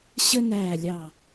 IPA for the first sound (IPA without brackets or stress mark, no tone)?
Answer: ɕ